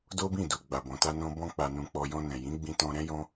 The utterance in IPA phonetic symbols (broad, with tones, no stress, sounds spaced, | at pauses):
d o˦ b ĩ˦˨ d u˨ ɡ͡b a˨ b ɔ̃˨ t a˧ n ɔ̃˧ b ɔ̃˧ k͡p a˨ n ũ˨ k͡p ɔ˨ j ɔ̃˧ n ɛ̃˨ j ĩ˨˦ ɡ͡b ĩ˧ t ɔ̃˧ ɾ ɛ̃˦ j ɔ̃˦